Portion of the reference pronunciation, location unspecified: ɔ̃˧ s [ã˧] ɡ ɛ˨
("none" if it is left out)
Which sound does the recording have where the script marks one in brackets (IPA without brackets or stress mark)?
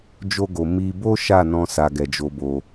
a˧